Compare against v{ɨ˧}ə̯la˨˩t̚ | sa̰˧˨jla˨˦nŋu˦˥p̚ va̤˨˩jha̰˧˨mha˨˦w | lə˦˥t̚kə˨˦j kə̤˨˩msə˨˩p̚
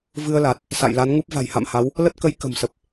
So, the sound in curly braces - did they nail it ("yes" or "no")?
yes